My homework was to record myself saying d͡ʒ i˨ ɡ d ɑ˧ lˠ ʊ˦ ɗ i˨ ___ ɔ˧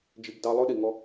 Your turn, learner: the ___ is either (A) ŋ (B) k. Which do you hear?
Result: A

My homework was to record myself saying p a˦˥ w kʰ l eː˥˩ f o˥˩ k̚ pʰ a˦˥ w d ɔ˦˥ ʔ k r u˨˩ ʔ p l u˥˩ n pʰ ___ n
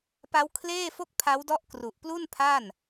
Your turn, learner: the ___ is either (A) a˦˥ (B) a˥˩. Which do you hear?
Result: B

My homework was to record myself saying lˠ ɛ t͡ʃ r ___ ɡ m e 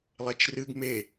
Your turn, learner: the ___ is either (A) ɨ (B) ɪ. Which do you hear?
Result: A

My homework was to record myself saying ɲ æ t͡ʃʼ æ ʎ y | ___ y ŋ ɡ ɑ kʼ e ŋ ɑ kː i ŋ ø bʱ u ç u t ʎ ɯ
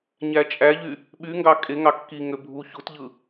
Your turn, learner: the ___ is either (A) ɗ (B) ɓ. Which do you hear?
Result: B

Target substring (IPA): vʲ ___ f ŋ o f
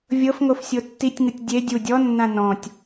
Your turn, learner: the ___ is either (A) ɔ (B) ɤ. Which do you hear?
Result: B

